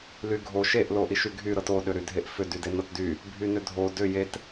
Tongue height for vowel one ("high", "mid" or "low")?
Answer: high